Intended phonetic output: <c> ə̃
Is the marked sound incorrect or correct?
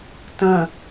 incorrect